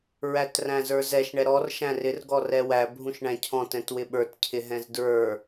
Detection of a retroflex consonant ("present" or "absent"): present